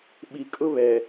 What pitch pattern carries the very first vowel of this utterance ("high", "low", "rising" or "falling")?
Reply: low